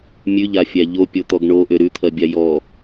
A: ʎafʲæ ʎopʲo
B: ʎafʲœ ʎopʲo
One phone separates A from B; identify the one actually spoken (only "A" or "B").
A